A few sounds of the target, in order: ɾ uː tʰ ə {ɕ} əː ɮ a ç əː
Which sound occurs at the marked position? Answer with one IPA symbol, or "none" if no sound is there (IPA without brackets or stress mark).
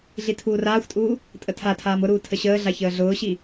ɕ